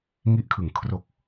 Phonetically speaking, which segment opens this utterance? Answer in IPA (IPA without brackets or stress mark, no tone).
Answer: ŋ